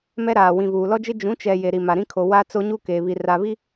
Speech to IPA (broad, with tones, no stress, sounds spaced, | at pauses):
m ɛ˦ ɾ aː˨ w ĩ˨ v uː˨ l ɔ˦ d͡ʒ ɪ˦ d͡ʒ ũ˨˦ t͡ʃ ɛ˨ j e˨ ɾ i˨ m a˨ ɾ ĩ˦ kʰ o˨ w a˦ t͡s o˦ ɲ u˦ k eː˨ β i˨ r a˨ β i˦